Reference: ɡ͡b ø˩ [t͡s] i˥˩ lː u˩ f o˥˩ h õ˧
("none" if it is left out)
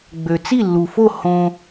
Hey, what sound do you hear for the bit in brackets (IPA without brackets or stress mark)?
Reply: t͡s